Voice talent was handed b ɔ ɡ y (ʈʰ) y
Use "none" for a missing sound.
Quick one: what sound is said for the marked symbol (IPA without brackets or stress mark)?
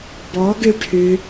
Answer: ʈʰ